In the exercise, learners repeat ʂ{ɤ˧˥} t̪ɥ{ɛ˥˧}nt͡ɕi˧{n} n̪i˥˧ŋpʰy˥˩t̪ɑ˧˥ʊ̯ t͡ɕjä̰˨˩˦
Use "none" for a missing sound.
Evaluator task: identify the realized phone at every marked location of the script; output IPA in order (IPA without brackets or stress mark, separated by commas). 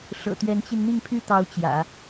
ɤ̰˨˩, ɛ˧˥, n